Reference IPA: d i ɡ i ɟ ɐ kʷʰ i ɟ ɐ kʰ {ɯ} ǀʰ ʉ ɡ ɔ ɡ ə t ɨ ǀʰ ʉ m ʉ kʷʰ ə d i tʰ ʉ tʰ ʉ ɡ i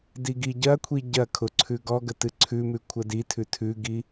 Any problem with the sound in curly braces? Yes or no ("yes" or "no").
yes